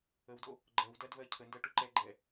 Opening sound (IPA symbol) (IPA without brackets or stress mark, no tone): ə